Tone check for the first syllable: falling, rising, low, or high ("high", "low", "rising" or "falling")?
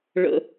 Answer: low